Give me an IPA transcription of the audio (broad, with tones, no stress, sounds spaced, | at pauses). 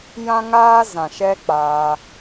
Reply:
j ã˦ ŋ aː˦ z ã˨ ʃ ɛ˦ k͡p aː˧